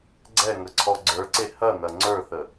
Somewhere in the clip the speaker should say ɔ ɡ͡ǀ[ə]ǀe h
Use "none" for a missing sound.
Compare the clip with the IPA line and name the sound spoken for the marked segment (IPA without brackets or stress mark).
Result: ə˞